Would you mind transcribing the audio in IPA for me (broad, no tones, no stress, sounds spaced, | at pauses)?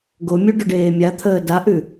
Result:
ɡ o mʲ ʉ ɖ ʏ ɖ eː mʲ a t̪ʰ əː d a ʔ ʉ